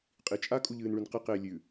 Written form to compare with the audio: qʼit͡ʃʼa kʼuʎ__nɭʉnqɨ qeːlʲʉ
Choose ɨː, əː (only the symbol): ɨː